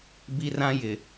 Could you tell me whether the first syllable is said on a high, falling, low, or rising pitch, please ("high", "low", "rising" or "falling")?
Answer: high